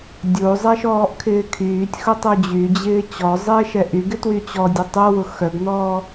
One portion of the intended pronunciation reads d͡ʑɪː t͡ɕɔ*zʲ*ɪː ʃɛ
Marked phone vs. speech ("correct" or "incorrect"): incorrect